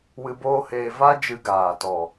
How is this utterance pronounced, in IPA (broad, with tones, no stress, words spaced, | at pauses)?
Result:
wɨ˧boː˦heː˧ va˦ d͡ʒɨ˧ɡaː˨tɔ˨